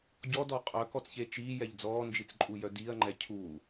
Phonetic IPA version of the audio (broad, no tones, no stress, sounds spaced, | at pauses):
ɟ ɔ d ɔ qʼ œ k ɔ t͡s ç e t͡ʃ iː j ɛ ʎ d͡z ɔː n d͡ʒ i t͡s ǃʼ u j œ d iː ɐ̯ ŋ͡ǃ ɛ cʰ u